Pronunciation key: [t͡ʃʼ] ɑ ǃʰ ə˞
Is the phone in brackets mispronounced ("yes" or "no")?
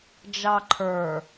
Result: yes